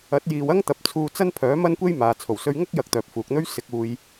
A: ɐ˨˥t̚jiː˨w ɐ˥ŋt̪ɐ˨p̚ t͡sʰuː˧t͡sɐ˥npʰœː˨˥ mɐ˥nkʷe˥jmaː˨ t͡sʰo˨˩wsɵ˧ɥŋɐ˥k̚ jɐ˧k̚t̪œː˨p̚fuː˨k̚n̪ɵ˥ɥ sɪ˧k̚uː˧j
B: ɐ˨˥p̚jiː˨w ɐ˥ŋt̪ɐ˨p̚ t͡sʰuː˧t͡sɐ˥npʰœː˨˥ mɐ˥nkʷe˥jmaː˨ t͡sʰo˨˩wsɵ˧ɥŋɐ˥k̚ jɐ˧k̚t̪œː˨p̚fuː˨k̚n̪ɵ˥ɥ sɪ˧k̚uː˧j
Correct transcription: A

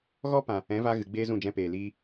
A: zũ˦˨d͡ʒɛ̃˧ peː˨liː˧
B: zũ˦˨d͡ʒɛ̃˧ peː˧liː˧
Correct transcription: A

